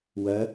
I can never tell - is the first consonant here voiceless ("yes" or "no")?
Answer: no